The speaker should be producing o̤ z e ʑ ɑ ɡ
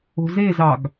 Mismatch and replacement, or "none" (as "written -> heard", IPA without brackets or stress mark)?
ʑ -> z